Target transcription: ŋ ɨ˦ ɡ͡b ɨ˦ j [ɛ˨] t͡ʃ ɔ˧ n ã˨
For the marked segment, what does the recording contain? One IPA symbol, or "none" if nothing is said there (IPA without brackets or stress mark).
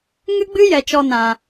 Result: ɛ˨